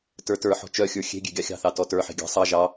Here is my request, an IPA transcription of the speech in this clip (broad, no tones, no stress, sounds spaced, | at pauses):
t ə˞ t ə˞ ħ ɔ̤ t͡ʃ œ xʲ ə˞ xʲ e̤ ɡʲ e̤ ɡʲ ɑ xʲ ɑ̤ θ ɑ t ɔ t ə˞ ħ e̤ ɡʲ ɑ̤ sˤ ɑ ʒ ɑ